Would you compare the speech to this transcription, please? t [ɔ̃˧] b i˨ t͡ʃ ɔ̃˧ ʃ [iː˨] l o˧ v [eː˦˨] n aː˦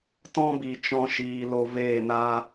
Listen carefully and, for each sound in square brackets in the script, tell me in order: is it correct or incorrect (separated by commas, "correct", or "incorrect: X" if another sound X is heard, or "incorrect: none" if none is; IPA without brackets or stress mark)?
incorrect: ɔ̃˦, correct, correct